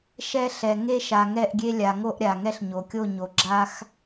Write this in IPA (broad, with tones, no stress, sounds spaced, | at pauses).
ʃ ɛ˦ ɬ ɛ˨ ŋ e˦ ʃ a˨ ŋ ɛ˦˨ ʔ ɡʲ e˦ lʲ a˨ ŋ o˦ ʔ ɾʲ a˨ ŋ ɛ˦ ɬ ɲ o˨ kʲ o˦˨ ɲ o˨ ɡ͡ǁ a˦ x